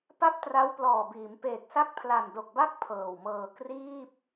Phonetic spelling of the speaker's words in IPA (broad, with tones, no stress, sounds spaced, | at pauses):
p a˥˩ p̚ t r a˦˥ w p l ɔː˨˩ b iː˩˦ m p eː˨˩ k̚ s a˥˩ k̚ pʰ l a˨˩ n d o˨˩ k̚ b a˥˩ k̚ pʰ ɤː˨˩ w m ɤː˧ k r iː˥˩ p̚